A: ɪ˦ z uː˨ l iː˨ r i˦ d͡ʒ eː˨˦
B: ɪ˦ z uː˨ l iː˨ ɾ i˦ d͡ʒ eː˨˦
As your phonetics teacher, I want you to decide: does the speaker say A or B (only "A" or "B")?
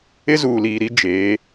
B